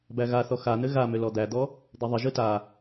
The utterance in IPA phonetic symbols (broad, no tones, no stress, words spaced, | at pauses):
bæɣaθɔ xan̪ɘ ɣamʏ lɔd̪æd̪ɔ | d̪eðˤəʒɯ ta